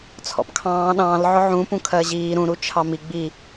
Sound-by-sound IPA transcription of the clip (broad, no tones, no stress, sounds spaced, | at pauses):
t͡sʰ ɔ̰ p kʰ ɑ̃ː ɗ ɑ̃ː l ʕ ʊ ʕ ũ p ũ kʰ ɜ ʑ iː ɾ ũ ɾ u t͡ʃʰ ɑ m i ɡ͡b i